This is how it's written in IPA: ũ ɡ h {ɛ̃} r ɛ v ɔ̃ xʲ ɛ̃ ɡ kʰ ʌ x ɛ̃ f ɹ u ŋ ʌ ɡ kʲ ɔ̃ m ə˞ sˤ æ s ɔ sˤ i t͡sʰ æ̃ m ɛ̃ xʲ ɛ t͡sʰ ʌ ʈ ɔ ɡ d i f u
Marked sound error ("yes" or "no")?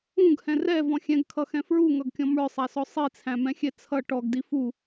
no